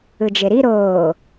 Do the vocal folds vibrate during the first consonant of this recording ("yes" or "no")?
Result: yes